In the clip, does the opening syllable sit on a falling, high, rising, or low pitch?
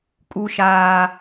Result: low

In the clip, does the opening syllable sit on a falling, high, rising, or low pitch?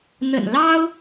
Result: low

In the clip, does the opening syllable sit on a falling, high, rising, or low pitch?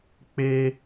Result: high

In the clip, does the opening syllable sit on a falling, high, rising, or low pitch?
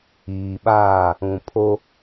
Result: low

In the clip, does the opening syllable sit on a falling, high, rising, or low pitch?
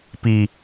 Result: low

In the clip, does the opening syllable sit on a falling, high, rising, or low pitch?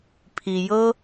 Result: low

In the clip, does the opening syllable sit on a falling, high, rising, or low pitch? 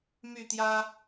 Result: falling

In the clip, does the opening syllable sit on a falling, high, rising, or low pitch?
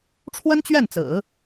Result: high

